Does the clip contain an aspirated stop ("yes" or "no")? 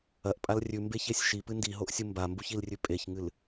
no